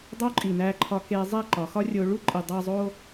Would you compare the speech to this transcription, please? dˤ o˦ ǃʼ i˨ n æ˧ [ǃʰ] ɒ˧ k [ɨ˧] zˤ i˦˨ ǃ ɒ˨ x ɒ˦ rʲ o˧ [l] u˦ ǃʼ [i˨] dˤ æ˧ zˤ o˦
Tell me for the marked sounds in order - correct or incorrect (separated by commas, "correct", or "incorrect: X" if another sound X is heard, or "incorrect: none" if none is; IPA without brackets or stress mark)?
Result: correct, incorrect: e˧, incorrect: ɭ, correct